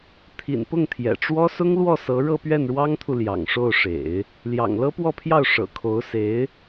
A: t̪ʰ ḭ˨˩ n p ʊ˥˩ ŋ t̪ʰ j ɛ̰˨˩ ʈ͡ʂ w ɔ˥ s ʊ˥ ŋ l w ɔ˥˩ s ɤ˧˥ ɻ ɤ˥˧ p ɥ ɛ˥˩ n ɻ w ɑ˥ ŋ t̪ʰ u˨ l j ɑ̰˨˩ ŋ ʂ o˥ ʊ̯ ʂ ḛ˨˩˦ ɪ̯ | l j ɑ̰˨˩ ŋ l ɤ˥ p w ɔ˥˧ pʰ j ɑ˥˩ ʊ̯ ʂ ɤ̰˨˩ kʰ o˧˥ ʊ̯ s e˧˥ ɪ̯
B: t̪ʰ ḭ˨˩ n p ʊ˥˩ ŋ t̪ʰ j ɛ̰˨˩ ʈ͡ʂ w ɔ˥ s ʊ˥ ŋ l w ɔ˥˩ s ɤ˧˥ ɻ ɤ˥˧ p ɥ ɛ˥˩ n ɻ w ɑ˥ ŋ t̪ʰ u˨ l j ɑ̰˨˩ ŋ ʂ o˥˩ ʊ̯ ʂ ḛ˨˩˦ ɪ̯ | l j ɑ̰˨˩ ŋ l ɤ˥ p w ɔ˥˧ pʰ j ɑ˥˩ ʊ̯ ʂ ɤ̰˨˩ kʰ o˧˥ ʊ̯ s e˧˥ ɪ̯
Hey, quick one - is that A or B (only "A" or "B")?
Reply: B